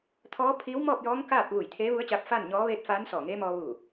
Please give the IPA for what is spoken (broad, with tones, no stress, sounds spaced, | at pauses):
t̪ʰ ɔː˧˥ pʰ iː˧˥ w m ɔː˥˨ p̚ j ɔː˧˥ ŋ k aː˥˨ p̚ ʋ u˧˩ j t̪ʰ eː˧˥ ʋ u˧˥ ə̯ t͡ɕ aː˧ p̚ f aː˥˨ n ɲ ɔː˧˥ ʋ eː˥˨ t̚ f aː˧˥ n s ɔː˧˩ ŋ eː˧˥ m ɔː˧ ʋ uː˧˩